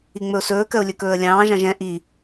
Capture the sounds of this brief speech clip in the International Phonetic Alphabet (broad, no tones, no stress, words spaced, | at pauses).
iŋ͡mɵʊ̯sɵːkɜʊ̯ lʲɵkɵːə̯lʲɑ̃ːʒɑ̃ʒ ɛ̃ ʔi